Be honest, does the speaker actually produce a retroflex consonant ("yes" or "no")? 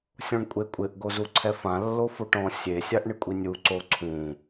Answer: yes